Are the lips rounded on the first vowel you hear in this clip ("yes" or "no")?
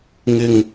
no